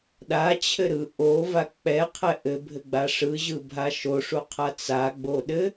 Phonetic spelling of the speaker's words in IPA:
ɗ a t͡ɕʰ ɘ ɾ ɯ ʔ o v a k͡p ɛ qʰ ɛ ʔ ɘ bʱ ɘ ɡ͡b a ʂ ɯ ʑ ɯ bʱ a ʃ o ʂ u qʰ a t͡s a ɡ͡b o ɗ ɘ

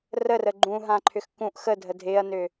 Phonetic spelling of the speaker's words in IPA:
r ə r ə ɡ͡ǃ ũ ɦ ã ǃʰ ʏ x k ũ ʔ x ə dʱ ə dʱ ɪː ɐ̯ n ʏ

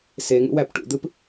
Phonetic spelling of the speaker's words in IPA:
s e ŋ ṵ w æ p ʈ ṵ d̪ ɯ p

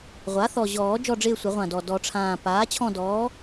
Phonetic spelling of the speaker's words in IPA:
ʁʷ a˩˥ θ ɔ˨˩ ʑ ɔː˨˩˦ d͡ʒ ɔ˦˨ ɖ͡ʐ ɪː˦˨ sʷ ɪ˨˩˦ ʁʷ ã˨˩ d ɔ˨˩ d ɔ˨˩˦ ʈ͡ʂʰ ãː˨˩ p aː˩˥ t͡ɕʰ ɔ̃˦˨ d ɔː˩˥

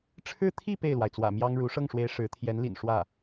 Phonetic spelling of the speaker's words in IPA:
ʈ͡ʂʰ ɻ̩˥ t̪ʰ i˥˧ p e˥˩ ɪ̯ l w a˩ ɪ̯ t͡s w ä̰˨˩ m j ɑ˥ ŋ ɻ u˧˥ ʂ ɤ˥˩ ŋ ʂ w e˧˥ ɪ̯ ʂ ɻ̩˧˥ t̪ʰ j ɛ˧˥ n l ḭ˨˩ n ʂ w ä˥˩

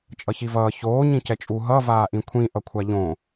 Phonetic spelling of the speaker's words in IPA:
t͡ʃʼ ʌ ç i v ʌː ç oː ɲ ĩ c ɛ t͡ʃʼ u ɦ ʌ v aː ʔ ĩ kʷʰ ĩ ʔ ʌ kʷʰ a ʎ õ

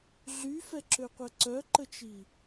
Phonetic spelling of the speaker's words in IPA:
ɮ y f ɛ ǁ ø qʷ ɛ ǀ œ ǃ ə t͡ʃ i

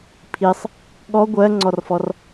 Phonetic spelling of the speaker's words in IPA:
pʰ i sˤ | ɠ ɔ ɡʷ ɜ ŋ͡ǀ ɔ r f ɔ r

